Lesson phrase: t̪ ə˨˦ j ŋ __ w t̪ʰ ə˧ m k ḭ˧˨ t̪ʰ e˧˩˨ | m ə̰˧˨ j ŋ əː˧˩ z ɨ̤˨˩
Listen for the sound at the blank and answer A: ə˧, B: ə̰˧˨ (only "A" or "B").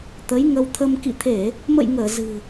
A